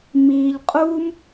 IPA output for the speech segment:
m iː˧ ʎ qʼ uː˦ m

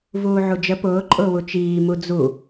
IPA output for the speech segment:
v uː ʕ u d͡ʒ ə p ʊː ǃʼ ʊː w u t͡ʃ iː m u d͡z u

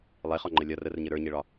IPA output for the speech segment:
lˠ e χ ɒ ŋ͡ǃ ə lʲ ɒ r ə r ɲ ɘ ɾ ə˞ ɲ e ɭ ɒ

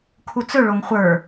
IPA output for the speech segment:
kʰ u t͡s ɵ ɭ o ŋ χʷ ə˞

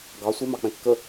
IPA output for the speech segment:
ɡ ɑ sʷ e m ɑ k͡p ɛ̃ kː ə

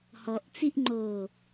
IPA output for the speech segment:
h ɔ ʔ t͡s i ʔ ŋ͡ǃ oː

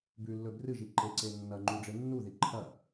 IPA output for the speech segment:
b ʉ lː ɵ b r ɨ ʒ i ǃ e ǀ e nː ɐ ŋ͡ǃ u ɖ͡ʐ e nː u ð i ǃʰ ɐ

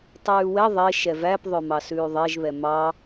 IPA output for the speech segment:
tˤ ʉː w ɛ ðˤ e ʃ ɛ v æ p ðˤ œ m ɑ s ʉː ðˤ e ʒ β ɛ m ɑ

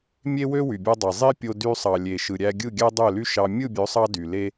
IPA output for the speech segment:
mʲ e˦ w ø˦ w y˨ bʲ ɑ˧ dˤ e˨ zˤ i˦ pʲ o˧ d y˧ sˤ ɑ˨ lʲ e˨ ʃ ɯ˨ ɾʲ æ˧ ɡʲ ɯ˦˨ ɡʲ æ˦ dˤ ø˦˨ l y˦ ʃ ɑ˧ mʲ ɯ˦˨ bʲ ø˨˦ sˤ ɑ˧ d y˨ l e˦

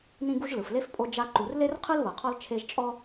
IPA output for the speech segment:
n ĩ˦ ɡ u˦ ʒ l ɯ˩ f l e˥ f pʼ o˦ d͡ʒ a˦ ǃ u˨ r l e˥ r qʰ ɯ˥ l β ɤ˩ qʰ ɔ˦ l t͡ʃʰ e˦ ʒ t͡ʃʼ ɔ˥

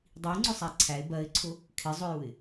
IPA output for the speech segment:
dˤ i ŋ͡ǀ ʊ sˤ æ ǀʰ æ ɪ̯ b ɜ ɪ̯ ǀʰ ʊ | kʰ ɪ zˤ ʊ j u ɪ̯

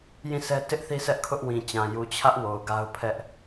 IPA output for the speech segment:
j ĩ˦˨ s ɛ˦ t ɪ˦ ʔ θ i˦ s ɛ˦ ʔ kʰ ʊ˦ ʔ w ĩ˨ t͡ɕ ã˨ j u˨ t͡ɕʰ ä˦ ʔ w o˨ ʊ̯ ɡ a˦ ʊ̯ pʰ ɛ˦ ʔ

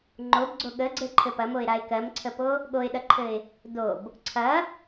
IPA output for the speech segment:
ŋ͡ǃ o b ɡ͡ǀ o ɠ ə ɡ͡ǀ ɘ ǃʰ ɘ p ɐ m o ɪ̯ ɾ a ɪ̯ k ɜ m ǀʰ ə p o | ɠ o ɪ̯ ɗ ɐ ǃʰ ɘ ɪ̯ | d o b | ǀʰ ɐ

